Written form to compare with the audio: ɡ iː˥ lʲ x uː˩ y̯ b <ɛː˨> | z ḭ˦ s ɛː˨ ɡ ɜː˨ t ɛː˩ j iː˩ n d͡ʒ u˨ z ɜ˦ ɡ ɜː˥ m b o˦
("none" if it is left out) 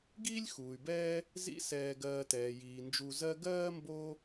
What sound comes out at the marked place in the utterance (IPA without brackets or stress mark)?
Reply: ɛː˦